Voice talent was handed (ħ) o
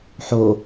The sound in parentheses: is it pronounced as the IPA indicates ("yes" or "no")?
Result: yes